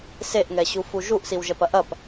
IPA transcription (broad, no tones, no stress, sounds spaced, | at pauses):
s e ʔ ŋ ɛ ɕ u f u ʒ u ʔ s i w ʒ ɛ p ɐ ʔ ɐ p